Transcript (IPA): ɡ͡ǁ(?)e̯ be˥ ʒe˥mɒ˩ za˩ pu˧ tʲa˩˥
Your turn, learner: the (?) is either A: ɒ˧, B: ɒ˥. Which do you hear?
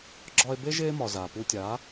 A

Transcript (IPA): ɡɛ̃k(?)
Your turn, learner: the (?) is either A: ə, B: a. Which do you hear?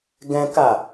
B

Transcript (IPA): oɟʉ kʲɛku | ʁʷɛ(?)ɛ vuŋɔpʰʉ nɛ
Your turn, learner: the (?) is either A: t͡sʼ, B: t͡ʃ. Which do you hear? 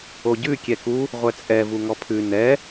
A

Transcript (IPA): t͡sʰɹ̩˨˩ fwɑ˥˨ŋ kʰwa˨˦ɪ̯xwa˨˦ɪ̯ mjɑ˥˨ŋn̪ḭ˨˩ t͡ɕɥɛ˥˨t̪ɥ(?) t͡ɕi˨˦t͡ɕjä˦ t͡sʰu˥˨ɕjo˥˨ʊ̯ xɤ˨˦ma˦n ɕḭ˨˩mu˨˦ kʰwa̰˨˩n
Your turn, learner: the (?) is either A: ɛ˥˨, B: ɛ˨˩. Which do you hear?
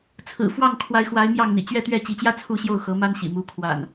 A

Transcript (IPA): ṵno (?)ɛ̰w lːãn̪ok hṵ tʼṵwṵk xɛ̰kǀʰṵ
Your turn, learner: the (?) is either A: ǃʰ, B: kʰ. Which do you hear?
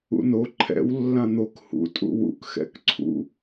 A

